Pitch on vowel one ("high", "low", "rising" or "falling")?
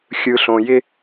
low